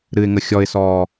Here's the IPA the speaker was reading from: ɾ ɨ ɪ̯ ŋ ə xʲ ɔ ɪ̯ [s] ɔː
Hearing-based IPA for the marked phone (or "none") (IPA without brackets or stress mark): s